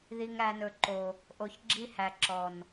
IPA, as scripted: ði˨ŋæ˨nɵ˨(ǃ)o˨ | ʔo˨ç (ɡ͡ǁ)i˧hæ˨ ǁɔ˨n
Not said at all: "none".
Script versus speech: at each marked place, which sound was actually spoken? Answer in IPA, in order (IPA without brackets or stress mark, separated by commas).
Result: ǃ, ɡ͡ǁ